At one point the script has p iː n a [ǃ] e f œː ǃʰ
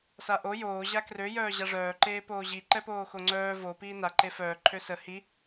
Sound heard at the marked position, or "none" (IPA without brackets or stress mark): ǃ